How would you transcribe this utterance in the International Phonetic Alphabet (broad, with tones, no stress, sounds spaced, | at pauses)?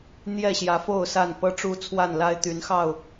n̪ j ɛ˥˨ ɕ j ä˨˦ f o˥˨ ʊ̯ s a˥˨ n p ɤ˦ ʈ͡ʂ u˦ t͡sʰ w a˥˨ n l a˦ ɪ̯ t̪ y˨˦ n x ɑ˥˨ ʊ̯